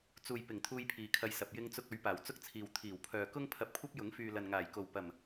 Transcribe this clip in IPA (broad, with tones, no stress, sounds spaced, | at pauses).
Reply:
t͡s uː˨ j p ɪ˨˩ ŋ t̪ʰ uː˧ j pʰ iː˨ kʰ ɐ˧ j s ɐ˨ p̚ j ɪ˧ ŋ t͡s ʊ˧ k̚ ɵ˨˥ ɥ p aː˨˩ w t͡s ʊ˥ k̚ t͡sʰ iː˨ w t̪ʰ iː˨˩ w pʰ œː˨ k ʊ˥ ŋ pʰ ɐ˧ p̚ kʷʰ ɐ˥ p̚ j ʊ˨˥ ŋ f yː˨ l ɐ˨ n ŋ aː˨˩ j k o˨˩ w p ɐ˨˩ m